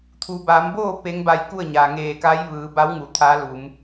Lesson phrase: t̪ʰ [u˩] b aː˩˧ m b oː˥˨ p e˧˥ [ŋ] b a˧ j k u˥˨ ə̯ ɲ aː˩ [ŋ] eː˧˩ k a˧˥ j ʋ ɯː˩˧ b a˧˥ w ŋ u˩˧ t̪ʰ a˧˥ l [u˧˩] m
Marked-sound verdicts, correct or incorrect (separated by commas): correct, correct, correct, incorrect